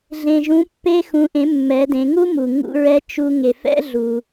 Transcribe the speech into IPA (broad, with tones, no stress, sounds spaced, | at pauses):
ɮ ẽ˩ ʒ ũ˩˧ pː e˧ x ũ˩˧ ʔ ẽ˩˧ mː ɛ˩˧ d ẽ˩˧ ŋ u˥ m u˩ ŋ ṵ˧ ɹ ɛ˧˥ t͡ʃ u˧ ŋ e˩ f ɛ̰˥ ɮ u˩